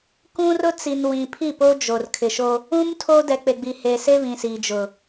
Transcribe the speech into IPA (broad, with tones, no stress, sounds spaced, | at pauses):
k ũ˦ r ʊ˦ t͡s i˨ n w ĩ˨ pʰ i˦˨ p o˦ d͡ʒ o˨ r kʰ ɪ˨ ʃ o˦ | ũ˦ m tʰ o˦ d ɛ˨ k͡p e˨ ɡ͡b i˨ h e˨ s e˦ β ĩ˨ s iː˨ d͡ʒ ʊ˨